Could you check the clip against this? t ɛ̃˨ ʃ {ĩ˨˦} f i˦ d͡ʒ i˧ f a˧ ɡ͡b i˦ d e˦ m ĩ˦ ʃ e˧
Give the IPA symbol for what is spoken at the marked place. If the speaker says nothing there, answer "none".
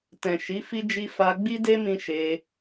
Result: i˨˦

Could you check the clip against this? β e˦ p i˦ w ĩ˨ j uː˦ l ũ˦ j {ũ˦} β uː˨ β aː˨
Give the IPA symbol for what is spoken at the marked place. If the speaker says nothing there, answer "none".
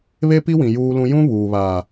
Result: ũ˦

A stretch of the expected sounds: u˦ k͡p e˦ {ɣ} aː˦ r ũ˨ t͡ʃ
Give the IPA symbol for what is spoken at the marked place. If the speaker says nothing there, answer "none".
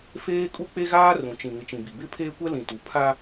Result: ɣ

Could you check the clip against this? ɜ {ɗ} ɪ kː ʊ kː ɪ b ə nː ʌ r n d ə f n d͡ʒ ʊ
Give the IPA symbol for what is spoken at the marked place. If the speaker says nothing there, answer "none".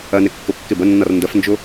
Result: n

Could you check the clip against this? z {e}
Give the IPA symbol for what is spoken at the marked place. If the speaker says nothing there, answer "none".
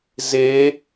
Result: e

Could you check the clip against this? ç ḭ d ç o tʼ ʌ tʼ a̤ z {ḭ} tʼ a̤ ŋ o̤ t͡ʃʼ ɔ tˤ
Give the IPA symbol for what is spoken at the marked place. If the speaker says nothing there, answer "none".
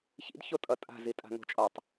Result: i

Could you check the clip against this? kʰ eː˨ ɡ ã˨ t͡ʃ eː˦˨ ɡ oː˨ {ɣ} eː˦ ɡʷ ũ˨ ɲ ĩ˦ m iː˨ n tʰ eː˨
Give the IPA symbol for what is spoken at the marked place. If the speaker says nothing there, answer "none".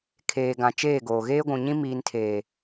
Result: ɣ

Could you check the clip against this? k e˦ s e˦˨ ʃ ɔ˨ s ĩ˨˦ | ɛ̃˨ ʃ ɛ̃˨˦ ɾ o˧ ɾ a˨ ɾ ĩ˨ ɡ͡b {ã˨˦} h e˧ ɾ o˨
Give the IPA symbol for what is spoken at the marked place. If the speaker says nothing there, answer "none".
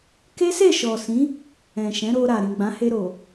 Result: ã˨˦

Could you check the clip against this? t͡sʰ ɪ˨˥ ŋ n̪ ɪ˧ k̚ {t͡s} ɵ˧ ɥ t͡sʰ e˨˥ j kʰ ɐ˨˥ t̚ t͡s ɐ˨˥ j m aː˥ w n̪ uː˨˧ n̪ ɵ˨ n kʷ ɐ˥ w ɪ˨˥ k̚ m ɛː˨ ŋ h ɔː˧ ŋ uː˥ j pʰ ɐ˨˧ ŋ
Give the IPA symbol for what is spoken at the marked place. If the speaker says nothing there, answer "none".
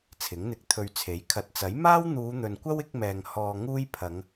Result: t̪ʰ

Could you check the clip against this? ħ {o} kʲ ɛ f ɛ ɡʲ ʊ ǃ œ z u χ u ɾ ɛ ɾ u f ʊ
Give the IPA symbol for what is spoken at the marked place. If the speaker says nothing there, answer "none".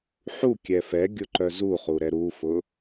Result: u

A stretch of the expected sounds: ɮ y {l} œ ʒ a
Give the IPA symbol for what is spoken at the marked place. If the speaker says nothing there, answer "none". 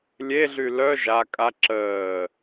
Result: l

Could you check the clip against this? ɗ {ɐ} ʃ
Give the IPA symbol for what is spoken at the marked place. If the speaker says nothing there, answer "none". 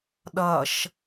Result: ɐ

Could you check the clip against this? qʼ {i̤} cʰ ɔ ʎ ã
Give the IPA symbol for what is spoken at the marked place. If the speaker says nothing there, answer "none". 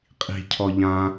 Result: i̤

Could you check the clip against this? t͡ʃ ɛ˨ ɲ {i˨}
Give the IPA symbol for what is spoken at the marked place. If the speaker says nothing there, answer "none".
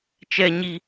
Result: i˨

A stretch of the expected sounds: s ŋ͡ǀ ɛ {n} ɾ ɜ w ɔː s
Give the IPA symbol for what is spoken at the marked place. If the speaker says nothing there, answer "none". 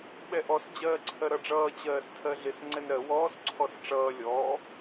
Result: n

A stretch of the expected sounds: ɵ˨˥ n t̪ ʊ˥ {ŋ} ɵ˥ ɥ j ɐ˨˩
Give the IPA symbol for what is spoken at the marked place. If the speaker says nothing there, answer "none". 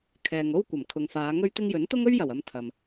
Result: ŋ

